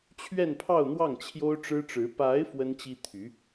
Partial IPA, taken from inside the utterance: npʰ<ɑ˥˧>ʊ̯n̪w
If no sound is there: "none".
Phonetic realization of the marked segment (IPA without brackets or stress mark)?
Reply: ɑ˥˧